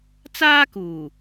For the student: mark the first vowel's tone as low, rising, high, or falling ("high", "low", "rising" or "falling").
high